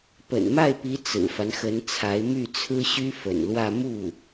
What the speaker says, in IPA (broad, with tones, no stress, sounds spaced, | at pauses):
p ə̰˨˩ n m a˥˩ ɪ̯ p i˧˥ t͡s ɹ̩˨˩ f a˦ n x ə˧˥ n t͡sʰ a˧˥ ɪ̯ m y˥˩ t͡sʰ ɹ̩˥ ɕ y˥ f ə̰˨˩ n l w ä˥˧ m u˥˩